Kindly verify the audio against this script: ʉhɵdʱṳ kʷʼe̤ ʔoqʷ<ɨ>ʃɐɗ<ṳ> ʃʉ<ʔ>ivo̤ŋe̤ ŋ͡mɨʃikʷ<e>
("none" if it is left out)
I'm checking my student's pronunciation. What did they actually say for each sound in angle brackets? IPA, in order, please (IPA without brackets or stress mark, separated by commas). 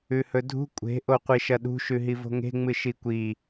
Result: i, ṳ, ɦ, i